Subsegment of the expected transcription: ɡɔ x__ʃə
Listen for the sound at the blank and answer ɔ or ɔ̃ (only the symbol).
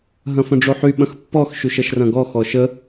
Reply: ɔ